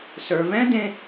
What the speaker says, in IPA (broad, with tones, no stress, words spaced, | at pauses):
sə˞˩vɛ̃˥ dẽ˥